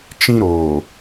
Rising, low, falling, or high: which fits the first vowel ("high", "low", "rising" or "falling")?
high